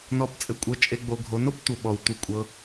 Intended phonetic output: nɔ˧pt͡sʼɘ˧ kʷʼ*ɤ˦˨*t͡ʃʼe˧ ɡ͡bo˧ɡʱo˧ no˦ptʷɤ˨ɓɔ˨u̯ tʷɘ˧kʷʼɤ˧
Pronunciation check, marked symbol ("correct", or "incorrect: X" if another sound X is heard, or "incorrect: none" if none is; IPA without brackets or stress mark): incorrect: ɤ˧